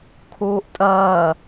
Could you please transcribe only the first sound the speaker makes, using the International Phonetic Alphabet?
kʰ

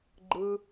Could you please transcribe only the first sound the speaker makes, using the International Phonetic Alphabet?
ɡ͡ǃ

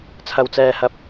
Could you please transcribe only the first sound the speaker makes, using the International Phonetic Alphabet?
t͡sʰ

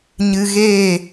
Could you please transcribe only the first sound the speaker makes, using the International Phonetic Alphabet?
ɲ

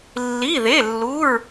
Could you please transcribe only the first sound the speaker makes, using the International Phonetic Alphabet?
lː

